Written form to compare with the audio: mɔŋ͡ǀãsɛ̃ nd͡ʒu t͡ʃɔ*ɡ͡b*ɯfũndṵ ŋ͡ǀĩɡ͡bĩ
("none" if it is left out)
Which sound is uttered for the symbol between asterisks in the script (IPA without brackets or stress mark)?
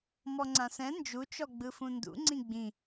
ɡ͡b